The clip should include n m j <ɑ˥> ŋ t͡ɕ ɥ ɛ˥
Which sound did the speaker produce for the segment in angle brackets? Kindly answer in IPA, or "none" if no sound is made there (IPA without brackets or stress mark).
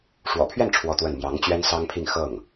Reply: ɑ˧˥